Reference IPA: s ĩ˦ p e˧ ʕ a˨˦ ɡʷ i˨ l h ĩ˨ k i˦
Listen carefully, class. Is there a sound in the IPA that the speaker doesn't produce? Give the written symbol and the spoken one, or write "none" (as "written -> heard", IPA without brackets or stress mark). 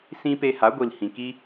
ʕ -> h